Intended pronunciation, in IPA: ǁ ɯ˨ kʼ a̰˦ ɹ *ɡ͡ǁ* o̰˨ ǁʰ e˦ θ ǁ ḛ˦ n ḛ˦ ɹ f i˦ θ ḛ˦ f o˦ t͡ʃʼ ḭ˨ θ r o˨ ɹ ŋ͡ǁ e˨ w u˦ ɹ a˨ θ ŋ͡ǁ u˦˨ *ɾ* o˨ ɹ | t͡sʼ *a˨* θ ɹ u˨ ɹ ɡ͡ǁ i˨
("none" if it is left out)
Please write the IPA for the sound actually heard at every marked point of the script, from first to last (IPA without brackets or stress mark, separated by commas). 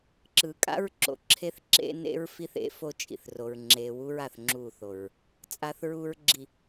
ǁ, θ, a˨